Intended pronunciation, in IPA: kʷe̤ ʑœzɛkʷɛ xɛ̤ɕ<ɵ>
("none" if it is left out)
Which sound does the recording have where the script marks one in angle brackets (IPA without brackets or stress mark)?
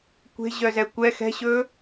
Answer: ɵ